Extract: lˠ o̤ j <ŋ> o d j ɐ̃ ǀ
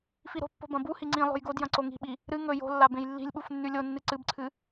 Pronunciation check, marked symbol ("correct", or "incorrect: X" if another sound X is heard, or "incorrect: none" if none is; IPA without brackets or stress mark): incorrect: ɡ